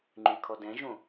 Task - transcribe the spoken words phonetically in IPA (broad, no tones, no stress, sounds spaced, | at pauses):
ŋ͡ǃ y kʰ ɔ d ɛ̃ ʒ õ